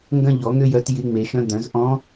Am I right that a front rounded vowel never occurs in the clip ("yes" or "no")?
no